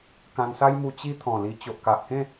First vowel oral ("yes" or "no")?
no